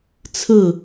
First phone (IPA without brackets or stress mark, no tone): t͡sʰ